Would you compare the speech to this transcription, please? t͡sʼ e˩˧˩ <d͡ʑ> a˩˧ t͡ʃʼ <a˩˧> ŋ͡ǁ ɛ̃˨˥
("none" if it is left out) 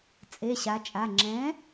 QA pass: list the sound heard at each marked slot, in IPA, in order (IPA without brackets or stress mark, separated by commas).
ɕ, a˩˧˩